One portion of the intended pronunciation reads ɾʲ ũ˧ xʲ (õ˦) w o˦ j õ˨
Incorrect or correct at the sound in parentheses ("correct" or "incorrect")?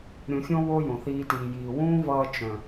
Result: correct